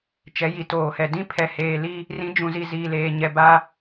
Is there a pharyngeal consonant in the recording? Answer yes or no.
no